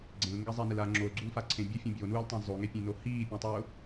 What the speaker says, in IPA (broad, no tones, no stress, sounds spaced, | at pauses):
ɡ͡ǀ ẽ l ŋ ɡ ɛ zˤ ɛ n ɪ l a ŋ͡ǁ o l ɡ͡ǀ u l f a ǀʰ ẽ bʲ ʊ fʲ õ bʲ o n uː l tˤ ẽ zˤ o ŋ e pʲ ẽ n o h iː pʲ õ tˤ ʊː